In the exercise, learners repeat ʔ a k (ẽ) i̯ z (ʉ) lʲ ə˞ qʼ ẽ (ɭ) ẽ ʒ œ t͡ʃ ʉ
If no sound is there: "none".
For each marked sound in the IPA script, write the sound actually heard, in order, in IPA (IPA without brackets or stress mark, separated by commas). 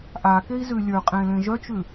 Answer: e, ʉ, l